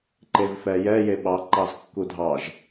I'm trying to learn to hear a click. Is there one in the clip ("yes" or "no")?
yes